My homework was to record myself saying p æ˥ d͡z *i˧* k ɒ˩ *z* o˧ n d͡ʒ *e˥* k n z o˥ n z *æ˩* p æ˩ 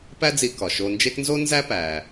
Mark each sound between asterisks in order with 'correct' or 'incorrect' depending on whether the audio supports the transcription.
correct, incorrect: ʃ, correct, incorrect: æ˥

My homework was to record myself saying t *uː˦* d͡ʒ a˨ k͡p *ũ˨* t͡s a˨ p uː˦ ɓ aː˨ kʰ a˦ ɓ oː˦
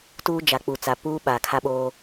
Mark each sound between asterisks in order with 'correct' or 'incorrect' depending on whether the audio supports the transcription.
correct, incorrect: u˨

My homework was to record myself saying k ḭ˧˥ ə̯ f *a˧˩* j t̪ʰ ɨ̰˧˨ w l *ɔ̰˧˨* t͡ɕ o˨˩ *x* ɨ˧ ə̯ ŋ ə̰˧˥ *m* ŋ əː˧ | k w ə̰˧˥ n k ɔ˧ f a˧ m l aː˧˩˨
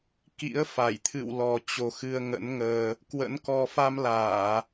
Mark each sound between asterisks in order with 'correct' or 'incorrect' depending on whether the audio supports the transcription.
correct, incorrect: ɔ˨˩, correct, incorrect: n

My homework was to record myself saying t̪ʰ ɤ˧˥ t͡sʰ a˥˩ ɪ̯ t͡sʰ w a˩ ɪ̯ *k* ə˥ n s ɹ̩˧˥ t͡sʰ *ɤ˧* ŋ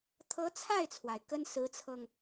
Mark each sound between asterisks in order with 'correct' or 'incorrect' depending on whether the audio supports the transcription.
correct, correct

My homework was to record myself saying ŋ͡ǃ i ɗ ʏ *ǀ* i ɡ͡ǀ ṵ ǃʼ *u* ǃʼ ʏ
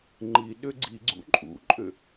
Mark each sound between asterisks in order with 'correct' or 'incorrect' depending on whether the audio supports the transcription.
incorrect: ɡ͡ǀ, incorrect: ṵ

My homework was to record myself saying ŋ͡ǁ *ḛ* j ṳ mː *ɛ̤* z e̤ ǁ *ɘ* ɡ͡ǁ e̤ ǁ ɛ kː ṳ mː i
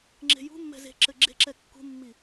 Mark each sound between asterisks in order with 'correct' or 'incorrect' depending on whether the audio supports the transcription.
incorrect: e̤, correct, correct

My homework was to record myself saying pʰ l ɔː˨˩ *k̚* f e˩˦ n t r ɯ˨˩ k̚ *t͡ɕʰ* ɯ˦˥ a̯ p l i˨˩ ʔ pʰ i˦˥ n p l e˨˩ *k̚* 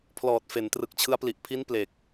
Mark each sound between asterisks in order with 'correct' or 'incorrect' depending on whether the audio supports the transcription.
incorrect: t̚, correct, correct

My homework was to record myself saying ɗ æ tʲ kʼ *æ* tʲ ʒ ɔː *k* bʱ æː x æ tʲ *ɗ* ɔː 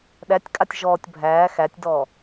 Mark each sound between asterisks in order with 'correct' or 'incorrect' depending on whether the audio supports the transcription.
incorrect: a, incorrect: tʲ, incorrect: d

